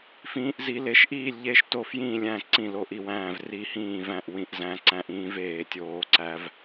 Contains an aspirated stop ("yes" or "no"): no